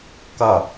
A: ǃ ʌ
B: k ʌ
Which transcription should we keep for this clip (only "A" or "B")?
B